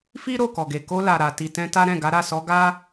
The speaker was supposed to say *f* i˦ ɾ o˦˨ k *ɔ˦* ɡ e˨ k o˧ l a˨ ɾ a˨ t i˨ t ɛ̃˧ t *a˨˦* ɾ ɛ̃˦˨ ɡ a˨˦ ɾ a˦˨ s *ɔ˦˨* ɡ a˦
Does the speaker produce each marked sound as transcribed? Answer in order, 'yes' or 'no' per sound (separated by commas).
yes, no, no, no